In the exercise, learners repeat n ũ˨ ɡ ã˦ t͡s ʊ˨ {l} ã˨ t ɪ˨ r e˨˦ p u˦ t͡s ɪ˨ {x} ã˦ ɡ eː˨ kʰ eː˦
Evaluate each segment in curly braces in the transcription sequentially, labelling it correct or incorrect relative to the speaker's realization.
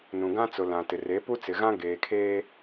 correct, incorrect: ɣ

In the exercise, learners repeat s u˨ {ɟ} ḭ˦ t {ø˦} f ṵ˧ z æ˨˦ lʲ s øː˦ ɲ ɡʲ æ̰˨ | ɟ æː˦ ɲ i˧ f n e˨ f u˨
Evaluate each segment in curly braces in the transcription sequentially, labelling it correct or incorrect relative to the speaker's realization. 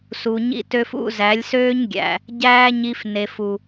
incorrect: ɲ, correct

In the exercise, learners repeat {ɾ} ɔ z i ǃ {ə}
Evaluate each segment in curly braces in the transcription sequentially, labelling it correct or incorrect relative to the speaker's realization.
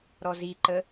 correct, correct

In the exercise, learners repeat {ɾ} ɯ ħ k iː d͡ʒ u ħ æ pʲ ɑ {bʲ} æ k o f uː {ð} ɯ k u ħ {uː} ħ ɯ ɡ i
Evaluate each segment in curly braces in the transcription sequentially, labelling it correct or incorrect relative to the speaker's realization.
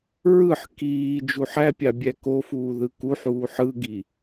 incorrect: ɹ, correct, correct, correct

